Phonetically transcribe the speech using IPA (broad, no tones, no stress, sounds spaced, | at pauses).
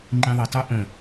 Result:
ŋ͡ǃ ĩ ðˤ i tˤ o ʔ ə̃